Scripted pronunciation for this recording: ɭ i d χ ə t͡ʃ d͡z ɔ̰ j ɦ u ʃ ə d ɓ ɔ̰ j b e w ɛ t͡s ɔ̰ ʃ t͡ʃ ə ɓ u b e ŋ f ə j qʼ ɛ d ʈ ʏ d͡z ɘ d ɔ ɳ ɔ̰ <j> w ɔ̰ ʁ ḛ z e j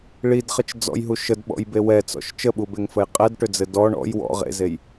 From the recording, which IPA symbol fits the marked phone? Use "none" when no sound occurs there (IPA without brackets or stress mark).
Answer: j